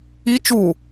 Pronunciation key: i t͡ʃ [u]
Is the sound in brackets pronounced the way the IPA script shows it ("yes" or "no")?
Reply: yes